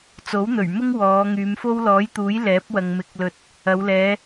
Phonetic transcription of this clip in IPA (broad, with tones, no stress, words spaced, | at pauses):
t͡so˨˥wn̪ɵ˨˩ɥmʊ˥ŋ wɔː˨˧ ŋyː˨˧mfo˥w lɔː˨˥jt̪uː˨˥j lɛː˨˥p̚wɐ˨ŋ mɪ˨˥k̚lɵ˨t̚ | ɐ˨˧w lɛː˨˧